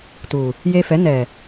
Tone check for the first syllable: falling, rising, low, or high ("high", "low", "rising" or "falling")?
low